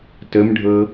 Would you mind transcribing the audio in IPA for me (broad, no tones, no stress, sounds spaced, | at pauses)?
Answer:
t ə m ɖʱ ɤ